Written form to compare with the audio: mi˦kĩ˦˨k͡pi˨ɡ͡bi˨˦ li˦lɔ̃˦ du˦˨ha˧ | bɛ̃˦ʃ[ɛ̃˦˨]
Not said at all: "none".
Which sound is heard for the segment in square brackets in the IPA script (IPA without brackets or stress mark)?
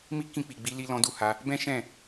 ɛ̃˦˨